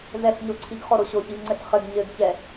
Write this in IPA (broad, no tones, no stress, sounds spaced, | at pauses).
z ɛ ɬ ɲ o ǀʰ i ɡ χ o ɾ o ɕ o ç i v ŋ͡ǀ ɘ ɬ χ ɘ ɡ ɲ ɘ ɡ ç ɛ